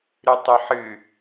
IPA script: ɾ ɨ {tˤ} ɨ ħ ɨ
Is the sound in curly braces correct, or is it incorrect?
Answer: correct